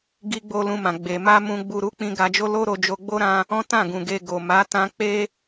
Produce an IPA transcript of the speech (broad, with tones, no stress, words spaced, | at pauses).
ɡi˦ ɡ͡bo˦lũ˧mã˨ ɡ͡be˨ma˧ mũ˧ ɡ͡bu˧ɾu˦ k͡pĩ˧ ɡa˧d͡ʒo˦lo˦ ɾo˧d͡ʒo˧ ɡ͡bo˦ ɾã˦ | ɔ̃˦tã˦˨ɡũ˨ ɡe˧ ɡo˨ ma˨˦tã˧k͡pe˦